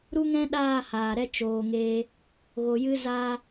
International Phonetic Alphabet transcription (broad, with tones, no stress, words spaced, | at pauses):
ɾu˦ŋɛ̃˦ɗaː˦˨ haː˨ɾɛ˦ t͡ʃoː˨ŋeː˧ | ɣo˨jɨ˦zaː˦